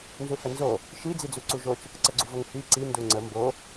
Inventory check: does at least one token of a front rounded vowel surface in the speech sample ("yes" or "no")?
no